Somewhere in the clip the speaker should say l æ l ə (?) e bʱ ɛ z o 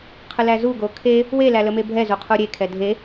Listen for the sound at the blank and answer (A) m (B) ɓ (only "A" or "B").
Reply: A